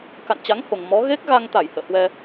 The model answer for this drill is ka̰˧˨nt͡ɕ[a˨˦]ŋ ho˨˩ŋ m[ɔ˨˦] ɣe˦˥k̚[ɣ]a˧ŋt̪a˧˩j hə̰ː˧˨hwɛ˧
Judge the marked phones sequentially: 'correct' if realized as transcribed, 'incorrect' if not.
correct, correct, correct

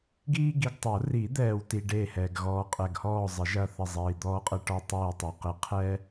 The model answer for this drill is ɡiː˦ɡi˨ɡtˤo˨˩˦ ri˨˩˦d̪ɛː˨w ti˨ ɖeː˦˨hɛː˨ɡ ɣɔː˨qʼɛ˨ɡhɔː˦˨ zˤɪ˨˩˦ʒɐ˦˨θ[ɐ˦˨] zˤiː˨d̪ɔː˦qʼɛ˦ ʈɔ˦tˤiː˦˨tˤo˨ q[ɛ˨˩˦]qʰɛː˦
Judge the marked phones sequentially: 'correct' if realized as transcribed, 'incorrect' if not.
correct, incorrect: ɪ˨˩˦

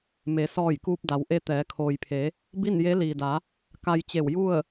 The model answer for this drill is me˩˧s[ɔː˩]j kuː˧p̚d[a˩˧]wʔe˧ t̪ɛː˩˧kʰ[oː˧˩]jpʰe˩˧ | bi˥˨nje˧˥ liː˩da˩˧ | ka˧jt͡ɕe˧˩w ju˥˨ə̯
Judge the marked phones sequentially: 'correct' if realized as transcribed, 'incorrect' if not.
incorrect: ɔː˧˩, correct, incorrect: oː˩

